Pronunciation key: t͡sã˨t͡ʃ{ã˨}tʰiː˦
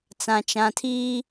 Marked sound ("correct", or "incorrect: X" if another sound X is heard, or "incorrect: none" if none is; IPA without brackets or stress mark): correct